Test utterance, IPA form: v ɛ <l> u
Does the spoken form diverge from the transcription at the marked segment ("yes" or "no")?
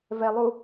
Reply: yes